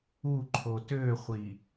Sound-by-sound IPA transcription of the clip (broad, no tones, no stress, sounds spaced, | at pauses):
u ǃʰ o t ø χʷ i